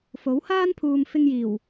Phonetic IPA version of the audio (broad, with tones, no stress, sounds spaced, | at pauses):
f o˨˥ w h aː˥ n pʰ uː˨ m f ɪ˧ ŋ j iː˨˩ w